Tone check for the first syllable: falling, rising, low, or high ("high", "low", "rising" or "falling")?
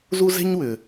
high